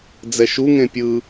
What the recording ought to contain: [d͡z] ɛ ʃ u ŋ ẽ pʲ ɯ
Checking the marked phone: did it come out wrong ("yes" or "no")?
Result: no